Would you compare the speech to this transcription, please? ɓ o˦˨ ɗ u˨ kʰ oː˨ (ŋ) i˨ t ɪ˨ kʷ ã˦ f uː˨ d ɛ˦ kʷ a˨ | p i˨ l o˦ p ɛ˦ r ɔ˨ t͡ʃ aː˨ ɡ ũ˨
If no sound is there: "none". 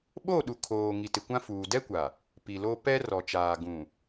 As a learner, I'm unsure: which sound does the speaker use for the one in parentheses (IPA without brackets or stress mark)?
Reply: ŋ